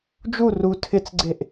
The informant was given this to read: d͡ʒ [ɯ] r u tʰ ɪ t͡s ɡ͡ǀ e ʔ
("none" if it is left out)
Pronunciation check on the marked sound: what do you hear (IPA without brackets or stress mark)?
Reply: u